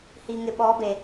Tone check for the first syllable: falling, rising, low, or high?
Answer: low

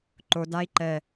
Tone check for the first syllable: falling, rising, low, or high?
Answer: low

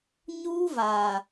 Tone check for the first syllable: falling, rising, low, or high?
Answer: high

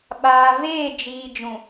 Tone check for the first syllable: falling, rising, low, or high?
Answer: low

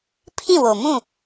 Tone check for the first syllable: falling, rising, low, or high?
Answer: falling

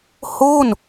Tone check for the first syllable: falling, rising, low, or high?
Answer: falling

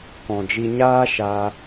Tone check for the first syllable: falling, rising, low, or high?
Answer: low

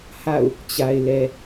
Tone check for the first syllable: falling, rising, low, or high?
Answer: falling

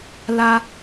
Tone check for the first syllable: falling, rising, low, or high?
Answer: high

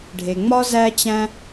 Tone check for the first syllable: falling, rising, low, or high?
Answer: low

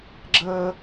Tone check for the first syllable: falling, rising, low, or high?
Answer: high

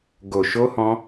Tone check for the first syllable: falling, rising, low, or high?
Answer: low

